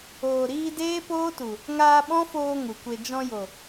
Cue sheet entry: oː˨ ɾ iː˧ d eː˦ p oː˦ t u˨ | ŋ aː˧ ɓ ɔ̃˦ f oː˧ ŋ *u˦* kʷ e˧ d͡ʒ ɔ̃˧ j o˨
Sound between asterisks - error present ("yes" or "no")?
yes